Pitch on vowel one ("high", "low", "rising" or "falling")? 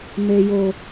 low